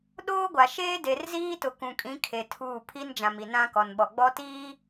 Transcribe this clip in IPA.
ɗ oː˦ ɡʷ a˨ ʃ eː˦ d e˨ r z iː˦ t ʊ˨ k ũ˨ kʼ ĩ˨˦ kʰ e˨ tʰ uː˦˨ pʰ i˦ n d͡ʒ ã˨ m i˨ n ã˦ k ɔ˨ n ɓ ɔ˨ ɡ͡b ɔ˦ t iː˦

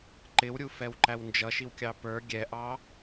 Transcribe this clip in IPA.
ǃ ɪ w ɾʲ u f ɛ w ǃ æ w n d͡ʒ ʌ ʃ i w kʲ ɑ p ə˞ ɡʲ ɛ ʔ ɑ

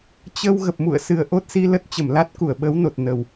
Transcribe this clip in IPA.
t͡ɕ ə˧ w ɣ ə˨˩ p̚ m ṵ˧˨ ə̯ s ɨ˨˩ ə̯ ʔ o˦˥ t̚ s i˧ l ə˦˥ t̚ t͡ɕ ə˧˩ m l a˦˥ t̚ k u˧˩ ə̯ ɓ ə˨˦ w n o˨˩ t̚ n ə˨˩ w

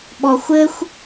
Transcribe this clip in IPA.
ɓ ɔ xʷ ɘ xʷ

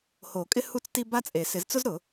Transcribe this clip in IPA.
h o˨˩˦ kʼ ɪ˥ h u˥ t͡s t i˥ b a˥ t͡sʼ e˨˩˦ s ɪ˨˩˦ z t͡s ʊ˥ z ɾ ʊ˨˩˦

